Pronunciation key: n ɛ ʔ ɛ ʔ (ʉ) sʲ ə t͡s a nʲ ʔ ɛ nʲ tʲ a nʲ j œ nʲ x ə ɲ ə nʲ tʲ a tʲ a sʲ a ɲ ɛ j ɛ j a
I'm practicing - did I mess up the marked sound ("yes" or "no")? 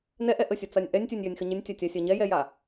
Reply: yes